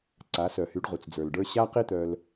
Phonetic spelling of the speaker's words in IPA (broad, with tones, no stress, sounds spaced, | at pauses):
ǀ a˩˧ s œ˩ h y˩˧ ɖ ʁ u˩ t͡s d͡z ə˞˩ l ɖ ə˞˧ ɕ a˧ q i˧ t̪ œ˩ l